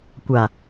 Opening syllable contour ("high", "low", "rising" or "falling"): low